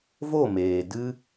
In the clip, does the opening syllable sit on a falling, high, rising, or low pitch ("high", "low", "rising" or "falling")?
falling